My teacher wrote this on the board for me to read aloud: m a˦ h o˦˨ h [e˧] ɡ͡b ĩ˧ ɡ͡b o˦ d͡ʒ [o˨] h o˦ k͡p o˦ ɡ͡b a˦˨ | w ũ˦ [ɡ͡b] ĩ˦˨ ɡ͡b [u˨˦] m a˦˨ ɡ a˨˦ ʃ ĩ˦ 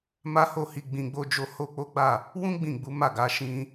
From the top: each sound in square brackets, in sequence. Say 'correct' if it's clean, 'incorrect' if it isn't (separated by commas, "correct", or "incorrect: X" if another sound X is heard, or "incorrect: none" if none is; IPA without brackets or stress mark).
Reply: incorrect: i˧, incorrect: o˦, correct, correct